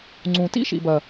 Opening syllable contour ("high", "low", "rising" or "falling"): low